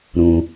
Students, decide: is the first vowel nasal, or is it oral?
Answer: nasal